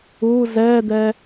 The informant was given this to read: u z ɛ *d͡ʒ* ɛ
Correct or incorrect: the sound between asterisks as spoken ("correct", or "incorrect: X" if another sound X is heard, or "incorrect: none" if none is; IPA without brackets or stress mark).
incorrect: d̪